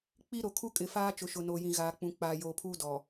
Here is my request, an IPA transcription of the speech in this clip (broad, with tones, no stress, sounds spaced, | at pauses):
k͡p i˦ ɾ o˨ kʰ u˦ kʼ ɪ˨ f aː˦ t͡ʃ ʊ˨ ʃ ʊ˨ n oː˨ j ĩ˨ ɣ aː˨ k͡p ũ˨ k͡p aː˨ j oː˨ pʰ uː˦ d ɔ˨